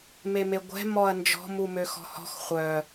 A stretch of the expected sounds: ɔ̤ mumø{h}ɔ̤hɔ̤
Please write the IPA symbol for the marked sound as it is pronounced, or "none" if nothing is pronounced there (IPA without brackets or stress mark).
x